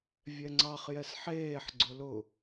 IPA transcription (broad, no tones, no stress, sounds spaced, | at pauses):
vʲ ɛ ŋ͡ǀ ɑ χ j ɛ s ħ eː ħ ɡ͡ǀ ʊ l ʊ